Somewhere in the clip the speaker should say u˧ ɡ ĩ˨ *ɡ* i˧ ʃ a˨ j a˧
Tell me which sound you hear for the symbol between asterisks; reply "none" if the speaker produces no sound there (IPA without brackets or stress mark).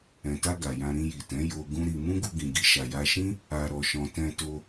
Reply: ɡ